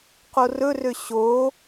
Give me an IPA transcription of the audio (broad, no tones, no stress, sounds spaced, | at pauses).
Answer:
q o r ɵ r ø ɕ o